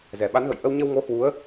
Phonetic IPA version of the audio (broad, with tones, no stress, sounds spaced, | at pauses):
z ɛ˨˩ ɓ a˨˦ n ɣ ə̰˧˨ j ʔ ə˧ w ɲ ə˧ w ŋ o˨˦ h w u˨˦ ə̯